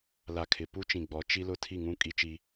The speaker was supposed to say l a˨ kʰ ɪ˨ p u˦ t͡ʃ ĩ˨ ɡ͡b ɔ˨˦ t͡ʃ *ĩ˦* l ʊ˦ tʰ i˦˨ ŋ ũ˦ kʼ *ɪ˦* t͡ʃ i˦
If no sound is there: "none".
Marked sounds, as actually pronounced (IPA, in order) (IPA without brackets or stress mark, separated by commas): i˦, i˦